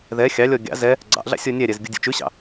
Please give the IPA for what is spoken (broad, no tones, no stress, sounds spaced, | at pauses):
ð ɛ xʲ ɑ lʲ ɔ ɡʲ ɑ̰ z ɛ | ɡ͡ǀ ɑ̰ ʔ ɮ ɑ̰ sʲ ɔ nʲ æ ɾʲ ɛ z ɡʲ u dʲ ṵ t͡ʃ ʉ ɕ ɑ̰